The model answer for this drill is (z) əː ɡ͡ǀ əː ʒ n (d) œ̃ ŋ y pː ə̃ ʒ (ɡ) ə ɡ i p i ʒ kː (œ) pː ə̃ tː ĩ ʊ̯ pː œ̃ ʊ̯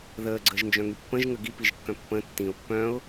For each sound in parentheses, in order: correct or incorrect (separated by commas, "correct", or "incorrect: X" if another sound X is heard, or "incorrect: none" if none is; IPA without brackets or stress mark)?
incorrect: ð, incorrect: d͡ʒ, incorrect: ŋ, incorrect: œ̃